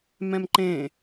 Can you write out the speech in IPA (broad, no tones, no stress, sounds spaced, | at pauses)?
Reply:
m ɛ̃ m ǃ ẽ